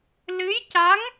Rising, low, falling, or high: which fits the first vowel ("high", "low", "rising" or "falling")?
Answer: rising